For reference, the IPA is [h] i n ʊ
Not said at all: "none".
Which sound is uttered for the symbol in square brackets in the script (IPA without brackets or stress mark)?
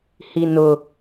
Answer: h